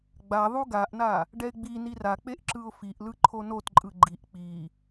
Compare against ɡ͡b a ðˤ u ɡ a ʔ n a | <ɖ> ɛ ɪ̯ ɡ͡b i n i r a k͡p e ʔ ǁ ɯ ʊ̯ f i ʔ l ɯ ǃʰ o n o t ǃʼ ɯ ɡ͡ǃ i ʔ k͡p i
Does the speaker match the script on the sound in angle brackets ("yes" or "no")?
yes